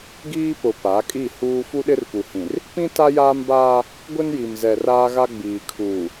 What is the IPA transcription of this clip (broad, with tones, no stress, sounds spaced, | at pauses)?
ɡ iː˦ p ʊ˨ p a˨˦ kʼ i˦˨ h uː˦ f u˦ ɗ ɪ˦ r p u˨ h ĩ˨ r | p ĩ˦ t a˦ j aː˦ m b aː˦ | ɡʷ ɪ˦ n j i˨ m z ɛ˨ r aː˦ ɣ a˦ ɡ͡b iː˨ kʰ uː˨